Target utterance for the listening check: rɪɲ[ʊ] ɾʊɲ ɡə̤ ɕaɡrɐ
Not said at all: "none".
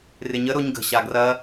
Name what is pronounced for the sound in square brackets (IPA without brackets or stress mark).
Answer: ə